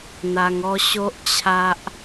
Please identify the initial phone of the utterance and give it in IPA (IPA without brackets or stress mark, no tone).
n̪